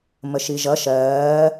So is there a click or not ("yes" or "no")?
no